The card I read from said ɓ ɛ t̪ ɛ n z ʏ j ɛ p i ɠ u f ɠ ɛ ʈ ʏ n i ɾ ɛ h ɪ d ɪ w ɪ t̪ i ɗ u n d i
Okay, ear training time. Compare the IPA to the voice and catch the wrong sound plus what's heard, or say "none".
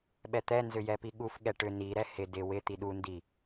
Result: none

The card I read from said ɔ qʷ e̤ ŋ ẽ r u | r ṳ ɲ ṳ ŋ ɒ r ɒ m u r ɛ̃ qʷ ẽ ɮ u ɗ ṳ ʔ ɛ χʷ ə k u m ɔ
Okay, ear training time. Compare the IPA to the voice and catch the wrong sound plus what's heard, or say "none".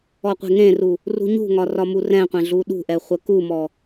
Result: none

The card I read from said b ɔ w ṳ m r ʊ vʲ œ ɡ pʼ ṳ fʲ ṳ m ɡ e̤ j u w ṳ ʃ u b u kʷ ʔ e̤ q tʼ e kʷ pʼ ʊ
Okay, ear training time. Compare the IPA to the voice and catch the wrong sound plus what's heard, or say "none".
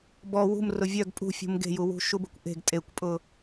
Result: q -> ɡ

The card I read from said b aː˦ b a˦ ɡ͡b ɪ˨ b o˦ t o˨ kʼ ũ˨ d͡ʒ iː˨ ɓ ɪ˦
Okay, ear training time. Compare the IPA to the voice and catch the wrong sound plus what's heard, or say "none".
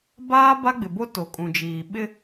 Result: none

